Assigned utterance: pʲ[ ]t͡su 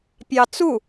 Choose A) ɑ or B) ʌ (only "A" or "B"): A